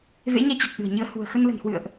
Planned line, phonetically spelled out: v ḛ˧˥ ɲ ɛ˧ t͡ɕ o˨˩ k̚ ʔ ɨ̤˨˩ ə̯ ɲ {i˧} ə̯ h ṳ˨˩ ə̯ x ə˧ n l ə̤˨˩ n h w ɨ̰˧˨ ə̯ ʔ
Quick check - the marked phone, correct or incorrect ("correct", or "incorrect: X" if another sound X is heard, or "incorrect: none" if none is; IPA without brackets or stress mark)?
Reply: incorrect: ɨ˧